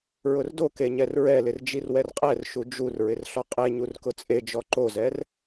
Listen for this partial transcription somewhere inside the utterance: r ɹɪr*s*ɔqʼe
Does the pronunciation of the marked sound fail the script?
yes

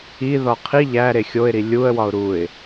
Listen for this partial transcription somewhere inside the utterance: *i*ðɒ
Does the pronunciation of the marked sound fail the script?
no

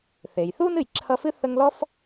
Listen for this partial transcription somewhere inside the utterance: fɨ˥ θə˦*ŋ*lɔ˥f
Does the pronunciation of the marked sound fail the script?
no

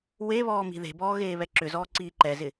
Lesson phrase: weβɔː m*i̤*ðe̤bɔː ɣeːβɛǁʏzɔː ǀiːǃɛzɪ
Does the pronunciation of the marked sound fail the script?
no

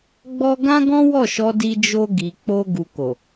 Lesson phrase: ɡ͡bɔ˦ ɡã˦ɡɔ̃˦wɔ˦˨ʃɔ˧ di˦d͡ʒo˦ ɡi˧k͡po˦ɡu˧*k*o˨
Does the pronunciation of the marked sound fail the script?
no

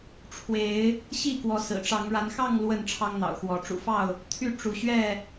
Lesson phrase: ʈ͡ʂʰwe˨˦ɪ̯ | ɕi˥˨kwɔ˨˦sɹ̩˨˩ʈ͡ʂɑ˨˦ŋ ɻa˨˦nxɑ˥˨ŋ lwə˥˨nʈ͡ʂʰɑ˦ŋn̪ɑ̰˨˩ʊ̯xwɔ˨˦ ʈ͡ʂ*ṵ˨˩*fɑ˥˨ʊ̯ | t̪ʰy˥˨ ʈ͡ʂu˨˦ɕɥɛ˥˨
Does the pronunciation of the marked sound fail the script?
no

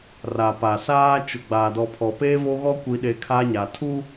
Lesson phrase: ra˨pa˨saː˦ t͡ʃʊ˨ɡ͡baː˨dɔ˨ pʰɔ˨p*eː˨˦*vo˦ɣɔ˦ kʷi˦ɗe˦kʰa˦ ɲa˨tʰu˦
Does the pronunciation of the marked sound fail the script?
yes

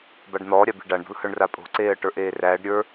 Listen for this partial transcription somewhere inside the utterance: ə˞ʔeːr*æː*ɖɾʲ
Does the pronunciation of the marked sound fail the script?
no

